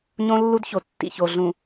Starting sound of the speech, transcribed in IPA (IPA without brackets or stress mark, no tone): ɲ